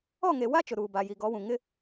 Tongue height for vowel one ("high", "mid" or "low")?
mid